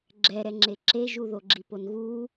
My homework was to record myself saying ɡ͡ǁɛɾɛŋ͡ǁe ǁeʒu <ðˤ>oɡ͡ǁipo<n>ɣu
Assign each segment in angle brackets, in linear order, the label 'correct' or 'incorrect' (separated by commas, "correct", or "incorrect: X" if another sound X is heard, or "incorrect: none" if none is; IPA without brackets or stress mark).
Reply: incorrect: ð, correct